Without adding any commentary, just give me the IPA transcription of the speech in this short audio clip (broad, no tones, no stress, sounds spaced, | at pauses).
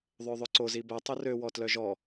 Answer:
ðˤ ø ðˤ ɵ ǀ o z i b ɛ tˤ u r ø w ɔ t l œ ʒ ɔ